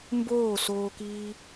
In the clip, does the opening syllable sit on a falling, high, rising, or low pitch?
falling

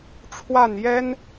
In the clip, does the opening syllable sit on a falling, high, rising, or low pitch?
falling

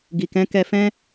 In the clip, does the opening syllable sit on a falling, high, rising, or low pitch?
low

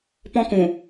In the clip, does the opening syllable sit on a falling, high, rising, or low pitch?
high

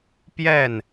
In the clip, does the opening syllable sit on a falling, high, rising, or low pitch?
falling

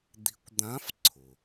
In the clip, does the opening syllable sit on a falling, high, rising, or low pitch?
rising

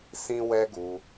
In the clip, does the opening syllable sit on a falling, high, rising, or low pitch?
high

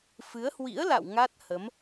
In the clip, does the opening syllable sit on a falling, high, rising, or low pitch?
rising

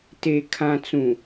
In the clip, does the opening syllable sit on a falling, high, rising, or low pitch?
low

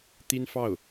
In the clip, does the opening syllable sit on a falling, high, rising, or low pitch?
high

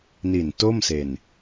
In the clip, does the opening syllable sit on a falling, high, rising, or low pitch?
low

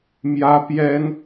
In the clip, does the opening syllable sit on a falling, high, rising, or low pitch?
high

